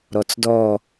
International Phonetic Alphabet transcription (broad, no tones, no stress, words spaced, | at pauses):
ɾɔt͡sdɔ